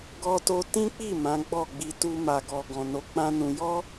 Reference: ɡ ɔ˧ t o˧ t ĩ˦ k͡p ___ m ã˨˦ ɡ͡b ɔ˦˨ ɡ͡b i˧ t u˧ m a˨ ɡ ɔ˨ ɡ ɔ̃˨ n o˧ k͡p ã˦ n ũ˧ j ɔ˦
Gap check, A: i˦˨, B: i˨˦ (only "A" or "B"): A